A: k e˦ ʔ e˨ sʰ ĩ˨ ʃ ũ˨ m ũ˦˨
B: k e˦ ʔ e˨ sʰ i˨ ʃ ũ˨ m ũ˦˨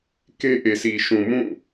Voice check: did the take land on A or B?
B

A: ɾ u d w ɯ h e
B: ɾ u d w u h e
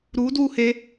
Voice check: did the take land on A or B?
B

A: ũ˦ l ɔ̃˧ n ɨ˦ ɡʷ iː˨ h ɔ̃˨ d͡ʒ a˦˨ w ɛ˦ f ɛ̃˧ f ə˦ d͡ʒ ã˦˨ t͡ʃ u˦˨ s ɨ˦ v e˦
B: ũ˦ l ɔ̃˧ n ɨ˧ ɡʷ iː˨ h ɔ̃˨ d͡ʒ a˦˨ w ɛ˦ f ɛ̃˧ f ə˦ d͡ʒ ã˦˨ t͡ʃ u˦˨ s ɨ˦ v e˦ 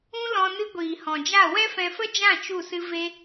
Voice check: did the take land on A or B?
A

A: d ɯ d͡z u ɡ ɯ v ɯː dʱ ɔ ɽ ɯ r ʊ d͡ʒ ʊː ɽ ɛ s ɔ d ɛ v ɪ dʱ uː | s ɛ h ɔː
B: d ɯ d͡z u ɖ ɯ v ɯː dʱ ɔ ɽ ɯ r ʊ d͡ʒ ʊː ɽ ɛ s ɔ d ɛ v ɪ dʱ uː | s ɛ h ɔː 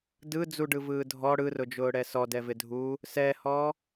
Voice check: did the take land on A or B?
B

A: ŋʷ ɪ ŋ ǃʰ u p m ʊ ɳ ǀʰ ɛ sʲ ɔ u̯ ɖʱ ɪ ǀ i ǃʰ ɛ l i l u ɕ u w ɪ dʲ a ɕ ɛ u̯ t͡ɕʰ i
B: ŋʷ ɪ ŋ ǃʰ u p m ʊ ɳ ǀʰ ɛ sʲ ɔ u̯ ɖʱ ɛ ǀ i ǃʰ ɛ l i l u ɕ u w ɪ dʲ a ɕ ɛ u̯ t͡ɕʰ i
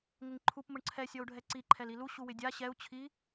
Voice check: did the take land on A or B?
B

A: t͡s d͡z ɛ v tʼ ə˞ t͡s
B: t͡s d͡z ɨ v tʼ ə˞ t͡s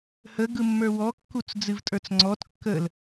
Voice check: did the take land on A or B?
B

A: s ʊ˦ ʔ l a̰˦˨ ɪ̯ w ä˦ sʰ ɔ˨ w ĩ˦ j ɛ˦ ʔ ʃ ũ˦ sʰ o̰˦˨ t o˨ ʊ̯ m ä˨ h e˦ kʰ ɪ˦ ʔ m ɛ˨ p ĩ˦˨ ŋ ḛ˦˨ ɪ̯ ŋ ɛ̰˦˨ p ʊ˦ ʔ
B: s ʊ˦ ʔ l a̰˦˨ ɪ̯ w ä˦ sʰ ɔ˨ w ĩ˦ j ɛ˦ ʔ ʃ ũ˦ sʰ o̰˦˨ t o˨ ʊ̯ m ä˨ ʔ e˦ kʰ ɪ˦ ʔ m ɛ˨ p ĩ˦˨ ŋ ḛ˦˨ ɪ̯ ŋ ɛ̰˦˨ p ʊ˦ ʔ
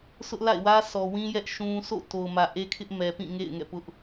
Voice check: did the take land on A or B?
B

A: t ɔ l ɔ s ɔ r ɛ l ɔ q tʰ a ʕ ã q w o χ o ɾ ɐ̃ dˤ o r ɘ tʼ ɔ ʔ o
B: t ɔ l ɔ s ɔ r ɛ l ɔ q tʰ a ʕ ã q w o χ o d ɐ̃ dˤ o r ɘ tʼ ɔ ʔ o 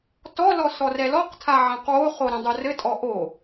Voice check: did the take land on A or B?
A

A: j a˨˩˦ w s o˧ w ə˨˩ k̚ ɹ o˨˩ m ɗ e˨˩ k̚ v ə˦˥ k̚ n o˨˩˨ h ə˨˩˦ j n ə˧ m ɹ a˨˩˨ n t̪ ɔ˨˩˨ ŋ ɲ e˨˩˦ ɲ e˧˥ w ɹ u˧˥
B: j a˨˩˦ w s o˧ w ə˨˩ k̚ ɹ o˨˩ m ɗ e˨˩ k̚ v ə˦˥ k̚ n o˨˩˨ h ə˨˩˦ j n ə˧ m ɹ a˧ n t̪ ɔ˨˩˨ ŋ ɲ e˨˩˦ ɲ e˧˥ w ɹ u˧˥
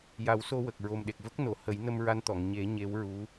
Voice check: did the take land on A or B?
B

